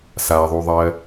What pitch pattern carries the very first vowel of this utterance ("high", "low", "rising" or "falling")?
low